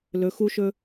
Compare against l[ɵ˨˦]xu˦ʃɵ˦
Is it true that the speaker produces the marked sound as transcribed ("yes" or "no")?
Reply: yes